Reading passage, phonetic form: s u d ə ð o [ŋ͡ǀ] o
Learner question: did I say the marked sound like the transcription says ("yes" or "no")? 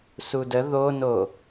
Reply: no